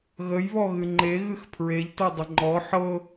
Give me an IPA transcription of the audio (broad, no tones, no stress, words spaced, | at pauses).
ɣəjβɔ ɣɨŋ͡ǃe ɣɨxpʰɹeʎtɤ dˤəŋ͡ǃɔ ħɤ